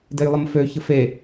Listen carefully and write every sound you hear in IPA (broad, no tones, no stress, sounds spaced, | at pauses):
d e j lˠ ə m f ø ç ə f e